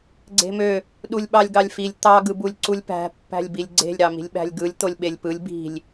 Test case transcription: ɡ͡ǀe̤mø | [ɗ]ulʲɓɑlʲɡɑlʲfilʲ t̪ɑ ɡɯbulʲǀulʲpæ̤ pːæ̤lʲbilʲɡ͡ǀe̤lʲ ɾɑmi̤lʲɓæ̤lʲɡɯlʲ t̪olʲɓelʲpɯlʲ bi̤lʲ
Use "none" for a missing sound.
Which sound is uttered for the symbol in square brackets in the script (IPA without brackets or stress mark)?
ɗ